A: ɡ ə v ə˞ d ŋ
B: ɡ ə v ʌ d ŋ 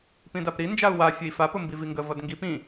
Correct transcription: B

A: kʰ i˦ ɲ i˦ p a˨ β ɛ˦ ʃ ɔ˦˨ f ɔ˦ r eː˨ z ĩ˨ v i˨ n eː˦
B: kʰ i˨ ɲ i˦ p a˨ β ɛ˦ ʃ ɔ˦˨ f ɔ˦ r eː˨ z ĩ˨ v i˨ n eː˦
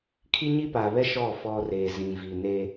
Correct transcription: A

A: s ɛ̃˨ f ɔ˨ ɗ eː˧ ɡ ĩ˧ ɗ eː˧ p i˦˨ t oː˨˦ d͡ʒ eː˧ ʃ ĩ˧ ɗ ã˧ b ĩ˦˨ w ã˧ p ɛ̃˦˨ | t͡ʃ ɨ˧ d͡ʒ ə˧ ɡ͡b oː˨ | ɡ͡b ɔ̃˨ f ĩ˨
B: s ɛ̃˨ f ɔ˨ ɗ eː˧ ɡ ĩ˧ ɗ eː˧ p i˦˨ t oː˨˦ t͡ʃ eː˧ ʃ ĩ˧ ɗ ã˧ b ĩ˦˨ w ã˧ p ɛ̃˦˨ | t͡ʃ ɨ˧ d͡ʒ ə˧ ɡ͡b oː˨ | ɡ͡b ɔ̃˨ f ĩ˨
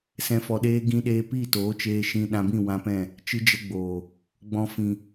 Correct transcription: B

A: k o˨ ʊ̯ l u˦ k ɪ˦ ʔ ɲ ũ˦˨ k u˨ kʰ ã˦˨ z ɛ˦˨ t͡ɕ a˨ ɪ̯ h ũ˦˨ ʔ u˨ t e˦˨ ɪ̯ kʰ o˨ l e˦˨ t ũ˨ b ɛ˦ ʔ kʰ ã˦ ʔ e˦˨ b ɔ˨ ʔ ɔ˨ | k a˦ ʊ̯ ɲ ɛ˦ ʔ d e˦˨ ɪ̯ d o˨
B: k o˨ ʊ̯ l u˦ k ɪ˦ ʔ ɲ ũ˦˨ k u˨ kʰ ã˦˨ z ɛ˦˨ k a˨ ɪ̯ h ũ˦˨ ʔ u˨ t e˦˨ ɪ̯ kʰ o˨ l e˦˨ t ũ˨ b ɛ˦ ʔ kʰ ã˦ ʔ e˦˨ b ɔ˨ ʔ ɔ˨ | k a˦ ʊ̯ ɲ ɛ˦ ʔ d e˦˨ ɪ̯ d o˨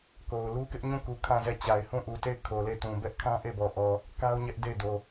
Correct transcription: A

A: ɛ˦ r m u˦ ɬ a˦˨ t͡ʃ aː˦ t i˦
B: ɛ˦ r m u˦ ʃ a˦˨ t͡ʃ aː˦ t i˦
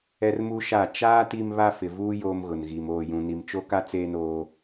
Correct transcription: B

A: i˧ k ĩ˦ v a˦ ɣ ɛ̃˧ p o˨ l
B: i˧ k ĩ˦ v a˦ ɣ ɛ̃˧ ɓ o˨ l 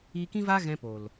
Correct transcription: A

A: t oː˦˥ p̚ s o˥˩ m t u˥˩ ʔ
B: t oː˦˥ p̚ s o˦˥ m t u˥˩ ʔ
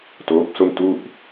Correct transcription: A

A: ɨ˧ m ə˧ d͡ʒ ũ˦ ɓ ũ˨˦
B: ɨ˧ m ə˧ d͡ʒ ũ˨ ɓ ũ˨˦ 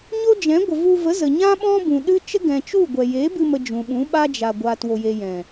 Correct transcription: B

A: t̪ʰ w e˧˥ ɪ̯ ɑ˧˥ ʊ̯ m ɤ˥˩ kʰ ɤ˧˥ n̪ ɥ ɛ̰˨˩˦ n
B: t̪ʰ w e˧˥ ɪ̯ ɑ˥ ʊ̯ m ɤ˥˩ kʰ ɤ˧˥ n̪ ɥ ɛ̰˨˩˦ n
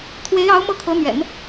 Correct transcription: A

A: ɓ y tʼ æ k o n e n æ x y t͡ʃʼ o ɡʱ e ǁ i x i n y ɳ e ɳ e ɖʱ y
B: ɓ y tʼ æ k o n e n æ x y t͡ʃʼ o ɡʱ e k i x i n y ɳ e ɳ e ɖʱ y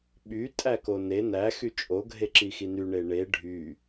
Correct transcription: A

